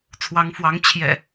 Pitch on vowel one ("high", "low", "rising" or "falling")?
rising